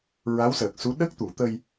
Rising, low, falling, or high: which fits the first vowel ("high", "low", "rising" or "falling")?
rising